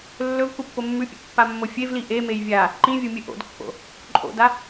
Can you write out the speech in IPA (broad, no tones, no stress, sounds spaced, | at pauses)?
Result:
lː ɵ v k u pː o mː ʉ pʲ ṵ pː a mː o fʲ e v l i ʔ e m e j vʲ a | ǃ ĩ vʲ o mʲ ɨ ʔ o̰ d kː o̰ | ǃʼ o̰ d a